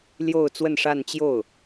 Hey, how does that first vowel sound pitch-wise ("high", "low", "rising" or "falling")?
falling